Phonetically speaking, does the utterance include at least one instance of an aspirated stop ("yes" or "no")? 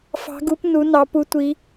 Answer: no